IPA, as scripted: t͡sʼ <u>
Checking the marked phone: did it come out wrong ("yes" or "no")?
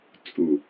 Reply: no